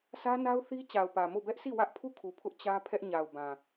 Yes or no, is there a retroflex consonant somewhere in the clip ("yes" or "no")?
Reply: no